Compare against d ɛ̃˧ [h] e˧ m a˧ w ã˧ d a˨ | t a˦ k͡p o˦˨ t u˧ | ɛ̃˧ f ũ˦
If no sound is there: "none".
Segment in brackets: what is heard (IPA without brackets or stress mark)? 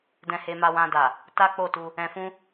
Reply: h